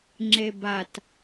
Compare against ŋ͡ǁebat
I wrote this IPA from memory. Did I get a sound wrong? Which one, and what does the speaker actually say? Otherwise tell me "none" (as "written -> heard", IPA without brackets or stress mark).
none